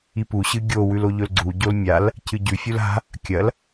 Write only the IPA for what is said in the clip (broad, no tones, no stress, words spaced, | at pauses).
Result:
ipu ɕɨɡʲo wʉloʎɵlɡ͡ǀu ɟolmʲal | cɨɟʉ fʲula̤ | kʲɐl